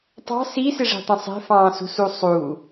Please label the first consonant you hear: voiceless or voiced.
voiceless